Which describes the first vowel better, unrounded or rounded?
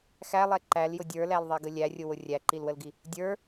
unrounded